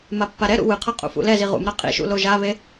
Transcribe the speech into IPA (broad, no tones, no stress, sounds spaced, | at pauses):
m a pː a ɾ ɛ ɾ ṵ w ɯ qʰ ʌ qʼ ṵ f ṵ l ɛ z i ʁ ṵ m ɾ a qʼ ḭ ʃ ṵ l o ʒ a β e